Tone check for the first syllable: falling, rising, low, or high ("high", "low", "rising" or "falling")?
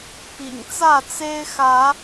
low